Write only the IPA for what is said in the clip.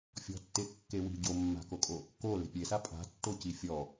fʲɔ̤tːe kːewi̤ ɟomːa̤kokʼo | ko le̤pʲesa pʼa̤tːoci fʲɔ

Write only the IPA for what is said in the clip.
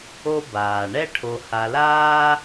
o˦ baː˩ɳɛ˥ ʈʰo˨ha˨laː˦

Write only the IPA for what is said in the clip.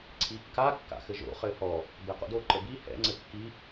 ǀʰikːa kːa̰xɘʒo̰ χɘhɔ | bɛqo̰do ǃəbi hɛ̰ ŋ͡ǀɘkːi

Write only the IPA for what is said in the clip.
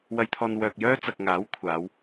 wɐ˧jt̪ʰɔː˧n wœː˨k̚jœː˥t͡sɐ˨k̚ ŋaː˨˥wkʷʰaː˨˧w

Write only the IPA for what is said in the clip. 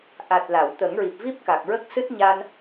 ʔa˨˩t̚ la˨˩˨wt̪ə˨˩˦ŋɹi˨˩p̚vi˦˥p̚ ka˨˩k̚ɹə˦˥k̚sɨ˦˥t̚ ɲa˧n

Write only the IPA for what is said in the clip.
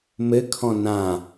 mɘkʰɔ̃ nã

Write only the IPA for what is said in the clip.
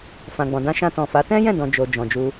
fã˨ɡ͡bɔ̃˨dã˧ ʃã˧tɔ̃˨fa˨˦ tɛ̃˦jɛ̃˦˨dɔ̃˨ d͡ʒo˨ d͡ʒɔ̃˨d͡ʒu˧

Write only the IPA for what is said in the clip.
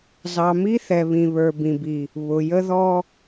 zɑ˨mi˦θɛ˨ βĩ˨βə˞˨ bĩ˨bi˨ | βʊ˨jə˦ðɔ˦

